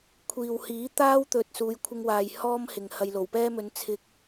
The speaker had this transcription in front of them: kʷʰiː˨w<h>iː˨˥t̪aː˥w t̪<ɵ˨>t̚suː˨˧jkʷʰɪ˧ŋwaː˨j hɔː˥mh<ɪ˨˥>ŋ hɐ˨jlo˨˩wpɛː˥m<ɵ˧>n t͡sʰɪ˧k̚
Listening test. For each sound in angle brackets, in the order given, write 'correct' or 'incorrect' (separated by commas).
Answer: correct, incorrect, incorrect, correct